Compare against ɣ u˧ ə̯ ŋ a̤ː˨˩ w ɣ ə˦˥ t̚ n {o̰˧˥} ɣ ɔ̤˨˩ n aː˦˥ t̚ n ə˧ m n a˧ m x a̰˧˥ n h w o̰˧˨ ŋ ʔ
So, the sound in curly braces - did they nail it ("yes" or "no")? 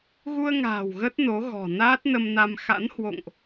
no